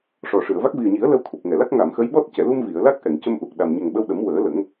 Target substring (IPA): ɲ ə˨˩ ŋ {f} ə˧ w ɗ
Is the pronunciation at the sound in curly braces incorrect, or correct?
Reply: incorrect